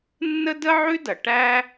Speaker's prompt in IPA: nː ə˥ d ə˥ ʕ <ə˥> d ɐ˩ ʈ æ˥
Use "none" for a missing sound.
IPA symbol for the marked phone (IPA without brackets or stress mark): ʉ˥